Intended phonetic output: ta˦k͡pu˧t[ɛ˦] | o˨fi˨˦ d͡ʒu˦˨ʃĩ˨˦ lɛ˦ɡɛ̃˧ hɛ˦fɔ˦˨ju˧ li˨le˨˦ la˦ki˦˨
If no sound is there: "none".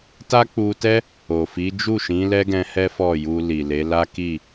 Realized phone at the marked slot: ɛ˦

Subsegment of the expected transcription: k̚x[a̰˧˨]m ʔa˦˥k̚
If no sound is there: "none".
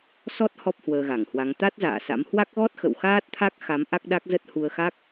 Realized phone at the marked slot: a˨˦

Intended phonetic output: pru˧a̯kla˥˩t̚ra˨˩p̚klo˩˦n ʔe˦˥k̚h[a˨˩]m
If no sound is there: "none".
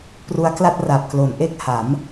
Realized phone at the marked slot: a˩˦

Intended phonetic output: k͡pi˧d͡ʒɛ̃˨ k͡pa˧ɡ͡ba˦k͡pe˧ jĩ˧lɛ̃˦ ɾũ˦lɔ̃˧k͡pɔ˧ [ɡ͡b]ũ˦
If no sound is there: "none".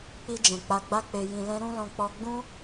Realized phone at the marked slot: ɡ͡b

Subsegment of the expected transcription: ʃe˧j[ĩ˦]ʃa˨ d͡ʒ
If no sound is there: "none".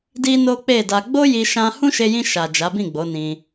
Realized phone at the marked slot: ĩ˧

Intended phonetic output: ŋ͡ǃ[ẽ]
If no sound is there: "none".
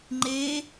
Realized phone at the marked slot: e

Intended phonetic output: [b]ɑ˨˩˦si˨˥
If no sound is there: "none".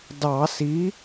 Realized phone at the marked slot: d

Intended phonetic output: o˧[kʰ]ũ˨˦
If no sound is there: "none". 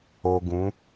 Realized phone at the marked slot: ɡ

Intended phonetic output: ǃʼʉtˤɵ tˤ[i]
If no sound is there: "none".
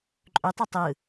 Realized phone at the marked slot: ɨ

